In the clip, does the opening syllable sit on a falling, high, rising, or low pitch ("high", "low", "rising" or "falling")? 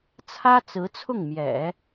high